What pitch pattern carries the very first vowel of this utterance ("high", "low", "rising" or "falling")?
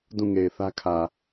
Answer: falling